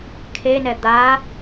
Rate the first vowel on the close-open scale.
mid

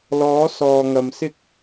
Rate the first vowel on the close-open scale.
mid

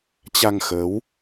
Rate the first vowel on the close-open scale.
open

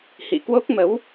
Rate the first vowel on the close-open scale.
close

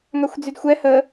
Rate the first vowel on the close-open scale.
open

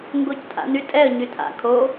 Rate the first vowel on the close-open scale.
mid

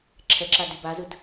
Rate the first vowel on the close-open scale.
mid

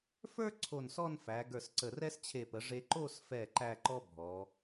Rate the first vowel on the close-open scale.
mid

